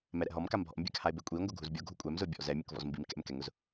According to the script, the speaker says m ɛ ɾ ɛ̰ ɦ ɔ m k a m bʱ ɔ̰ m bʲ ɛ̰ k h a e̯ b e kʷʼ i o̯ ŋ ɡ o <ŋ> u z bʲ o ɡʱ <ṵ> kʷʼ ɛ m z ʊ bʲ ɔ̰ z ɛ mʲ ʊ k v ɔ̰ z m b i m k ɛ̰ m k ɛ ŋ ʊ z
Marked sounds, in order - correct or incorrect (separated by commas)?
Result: incorrect, incorrect